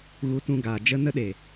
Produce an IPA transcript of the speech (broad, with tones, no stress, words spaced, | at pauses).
ɣu˨˦tũ˧ɡaː˨ d͡ʒə˧ nə˦ ɗe˨